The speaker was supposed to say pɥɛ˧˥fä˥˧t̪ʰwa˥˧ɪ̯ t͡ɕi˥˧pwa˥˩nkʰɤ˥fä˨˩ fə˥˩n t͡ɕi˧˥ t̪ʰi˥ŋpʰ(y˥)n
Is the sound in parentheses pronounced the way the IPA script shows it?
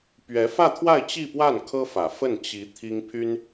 yes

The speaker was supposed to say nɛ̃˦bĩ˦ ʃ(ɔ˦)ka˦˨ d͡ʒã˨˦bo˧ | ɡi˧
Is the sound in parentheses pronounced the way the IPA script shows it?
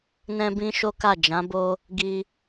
no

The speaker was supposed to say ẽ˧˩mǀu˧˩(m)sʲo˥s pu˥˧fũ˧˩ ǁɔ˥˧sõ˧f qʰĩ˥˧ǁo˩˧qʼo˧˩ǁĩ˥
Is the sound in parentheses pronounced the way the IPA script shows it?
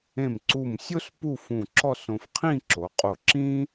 yes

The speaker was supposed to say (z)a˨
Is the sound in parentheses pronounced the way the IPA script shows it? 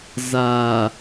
yes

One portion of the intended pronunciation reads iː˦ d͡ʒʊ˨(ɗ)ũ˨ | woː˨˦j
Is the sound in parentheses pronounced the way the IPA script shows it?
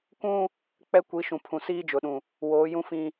yes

